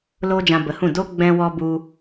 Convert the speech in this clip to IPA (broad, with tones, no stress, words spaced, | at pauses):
loː˦d͡ʒã˧bə˨˦hũ˦˨ do˦ ɡ͡bɛ̃˧ wɔ˧ bu˧